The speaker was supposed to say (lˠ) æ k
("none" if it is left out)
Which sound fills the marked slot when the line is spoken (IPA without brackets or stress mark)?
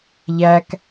ʎ